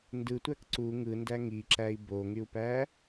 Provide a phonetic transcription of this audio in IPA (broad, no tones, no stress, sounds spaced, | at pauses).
n d ɯ tʷ æ k ǀ u ŋ ɯ n d æ ŋ i ǁ æ i̯ b o ŋ y u̯ p æ